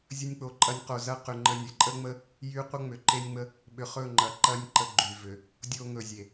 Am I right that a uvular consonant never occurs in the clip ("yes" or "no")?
no